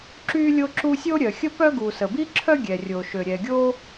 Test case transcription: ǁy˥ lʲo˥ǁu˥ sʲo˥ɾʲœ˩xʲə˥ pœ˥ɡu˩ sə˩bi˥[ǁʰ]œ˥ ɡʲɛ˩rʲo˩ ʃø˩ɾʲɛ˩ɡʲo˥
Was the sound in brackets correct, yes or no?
yes